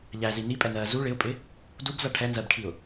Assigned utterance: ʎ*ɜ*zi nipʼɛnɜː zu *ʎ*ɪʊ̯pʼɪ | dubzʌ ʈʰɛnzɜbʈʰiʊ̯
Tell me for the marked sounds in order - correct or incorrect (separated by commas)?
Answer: incorrect, incorrect